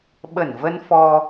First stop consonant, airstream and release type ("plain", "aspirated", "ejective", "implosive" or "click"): implosive